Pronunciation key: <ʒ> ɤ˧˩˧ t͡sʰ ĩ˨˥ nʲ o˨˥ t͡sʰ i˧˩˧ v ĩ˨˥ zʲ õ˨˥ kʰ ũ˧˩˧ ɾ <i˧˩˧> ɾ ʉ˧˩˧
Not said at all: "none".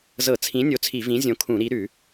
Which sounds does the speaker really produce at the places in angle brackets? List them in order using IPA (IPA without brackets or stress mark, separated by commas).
z, i˨˥